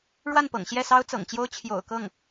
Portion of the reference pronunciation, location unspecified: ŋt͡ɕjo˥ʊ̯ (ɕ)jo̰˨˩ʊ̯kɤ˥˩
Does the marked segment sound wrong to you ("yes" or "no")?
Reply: yes